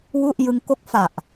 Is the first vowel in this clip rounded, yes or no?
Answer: yes